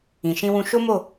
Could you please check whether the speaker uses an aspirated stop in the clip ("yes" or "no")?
no